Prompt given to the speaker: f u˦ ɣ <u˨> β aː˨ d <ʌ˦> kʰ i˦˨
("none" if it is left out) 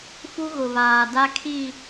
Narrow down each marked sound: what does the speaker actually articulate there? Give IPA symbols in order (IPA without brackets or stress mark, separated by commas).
ʊ˨, a˦